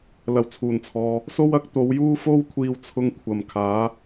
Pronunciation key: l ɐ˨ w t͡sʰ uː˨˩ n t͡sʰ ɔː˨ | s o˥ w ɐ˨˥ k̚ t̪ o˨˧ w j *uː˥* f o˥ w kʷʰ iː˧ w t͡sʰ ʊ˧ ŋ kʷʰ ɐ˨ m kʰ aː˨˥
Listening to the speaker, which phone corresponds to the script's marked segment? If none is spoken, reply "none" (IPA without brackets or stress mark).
uː˥